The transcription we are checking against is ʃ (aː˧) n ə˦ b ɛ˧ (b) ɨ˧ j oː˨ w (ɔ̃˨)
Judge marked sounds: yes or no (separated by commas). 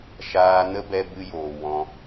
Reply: yes, yes, no